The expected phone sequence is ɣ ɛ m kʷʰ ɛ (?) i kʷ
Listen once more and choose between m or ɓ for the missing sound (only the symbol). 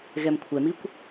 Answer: m